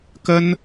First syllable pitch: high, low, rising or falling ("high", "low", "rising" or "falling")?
high